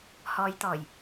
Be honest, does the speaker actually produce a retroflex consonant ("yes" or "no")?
no